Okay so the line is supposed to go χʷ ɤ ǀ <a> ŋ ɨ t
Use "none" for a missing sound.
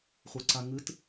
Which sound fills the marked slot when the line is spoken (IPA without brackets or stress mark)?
a